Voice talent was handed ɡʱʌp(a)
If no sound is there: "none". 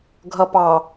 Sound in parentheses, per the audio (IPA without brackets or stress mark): ɑ